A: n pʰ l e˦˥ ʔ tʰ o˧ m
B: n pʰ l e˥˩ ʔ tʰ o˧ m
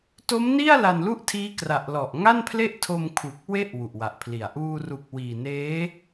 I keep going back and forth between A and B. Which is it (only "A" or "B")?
B